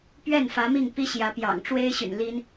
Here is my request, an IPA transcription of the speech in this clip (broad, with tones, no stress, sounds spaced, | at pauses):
p ɥ ɛ˥˩ n f ä˧˥ m i˥˩ ŋ p i˥ ɕ j ä˧˥ p j ɑ̰˨˩ ŋ ʈ͡ʂ w e˥ ɪ̯ ɕ y̰˨˩ n l i˥ n